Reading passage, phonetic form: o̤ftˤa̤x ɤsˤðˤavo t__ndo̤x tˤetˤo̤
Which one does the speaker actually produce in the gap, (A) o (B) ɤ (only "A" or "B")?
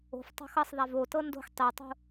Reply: B